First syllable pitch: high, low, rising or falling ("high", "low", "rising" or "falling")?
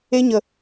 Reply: high